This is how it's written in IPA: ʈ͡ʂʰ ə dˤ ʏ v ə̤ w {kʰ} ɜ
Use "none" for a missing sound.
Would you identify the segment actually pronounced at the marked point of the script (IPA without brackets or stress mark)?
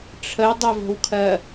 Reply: kʰ